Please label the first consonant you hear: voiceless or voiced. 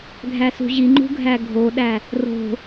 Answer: voiced